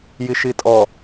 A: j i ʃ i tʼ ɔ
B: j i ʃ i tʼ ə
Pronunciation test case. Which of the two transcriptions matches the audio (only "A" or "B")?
A